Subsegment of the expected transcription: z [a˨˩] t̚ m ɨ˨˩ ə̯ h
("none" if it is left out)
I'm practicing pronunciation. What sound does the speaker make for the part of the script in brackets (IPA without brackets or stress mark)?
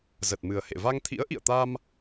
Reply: ə˨˩